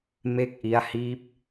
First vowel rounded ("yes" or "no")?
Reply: no